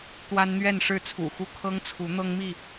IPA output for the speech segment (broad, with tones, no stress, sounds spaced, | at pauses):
t̪ w a˦ n n̪ ɥ ɛ˥˨ n ʂ ɻ̩˥˨ t͡sʰ ṵ˨˩ x u˦ kʰ ɤ˦ ŋ t͡sʰ u˨˦ n̪ ɤ˦ ŋ m i˥˨